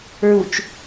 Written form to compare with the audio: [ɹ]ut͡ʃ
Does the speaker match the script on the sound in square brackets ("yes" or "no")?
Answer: yes